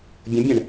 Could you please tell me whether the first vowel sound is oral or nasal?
nasal